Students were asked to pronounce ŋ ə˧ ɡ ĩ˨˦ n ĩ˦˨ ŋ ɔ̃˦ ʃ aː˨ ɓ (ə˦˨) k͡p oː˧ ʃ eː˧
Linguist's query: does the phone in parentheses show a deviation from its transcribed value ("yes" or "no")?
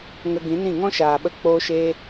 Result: yes